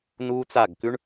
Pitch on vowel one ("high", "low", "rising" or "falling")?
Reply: high